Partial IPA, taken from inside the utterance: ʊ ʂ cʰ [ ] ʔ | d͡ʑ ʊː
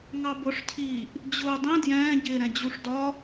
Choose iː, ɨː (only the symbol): iː